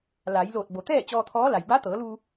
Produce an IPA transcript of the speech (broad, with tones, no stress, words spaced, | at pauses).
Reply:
laː˩˧jloː˧˩t̚bo˩ t̪ɛː˥˨ t͡ɕɔː˧t̪ʰɔː˧˥la˩j ba˧˥t̪ɤː˩˧luː˧